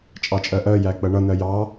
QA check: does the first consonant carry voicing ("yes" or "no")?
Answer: no